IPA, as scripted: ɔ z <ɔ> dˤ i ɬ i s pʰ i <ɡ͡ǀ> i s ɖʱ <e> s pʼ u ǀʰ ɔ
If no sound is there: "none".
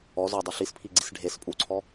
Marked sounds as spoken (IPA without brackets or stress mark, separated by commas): ɔ, ɡ͡ǀ, e